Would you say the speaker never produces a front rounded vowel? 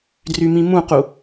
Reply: no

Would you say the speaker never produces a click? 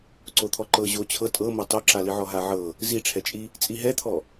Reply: no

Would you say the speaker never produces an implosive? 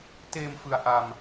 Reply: yes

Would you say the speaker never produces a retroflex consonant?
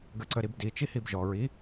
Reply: yes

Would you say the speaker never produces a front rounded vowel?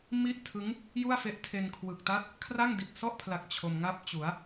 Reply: yes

